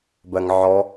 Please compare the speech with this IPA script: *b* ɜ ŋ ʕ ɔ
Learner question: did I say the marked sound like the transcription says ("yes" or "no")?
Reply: yes